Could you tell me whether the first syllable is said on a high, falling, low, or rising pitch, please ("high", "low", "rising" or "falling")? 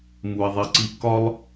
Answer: low